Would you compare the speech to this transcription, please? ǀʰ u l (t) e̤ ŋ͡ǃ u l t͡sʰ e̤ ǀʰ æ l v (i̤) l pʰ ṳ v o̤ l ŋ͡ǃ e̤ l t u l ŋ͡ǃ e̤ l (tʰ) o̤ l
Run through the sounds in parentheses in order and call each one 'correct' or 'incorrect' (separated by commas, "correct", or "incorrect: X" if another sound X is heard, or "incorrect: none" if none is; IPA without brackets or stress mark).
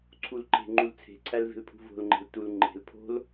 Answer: incorrect: ǃ, incorrect: e̤, incorrect: pʰ